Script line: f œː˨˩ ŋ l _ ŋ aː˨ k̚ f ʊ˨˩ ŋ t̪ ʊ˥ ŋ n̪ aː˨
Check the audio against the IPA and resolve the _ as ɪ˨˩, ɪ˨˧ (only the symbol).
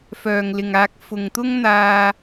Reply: ɪ˨˩